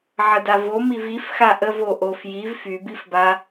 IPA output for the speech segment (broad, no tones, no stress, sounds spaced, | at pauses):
ʕ ə d a v o m i v i f x a ʔ ə v o ʔ o f j i v f y b i f b a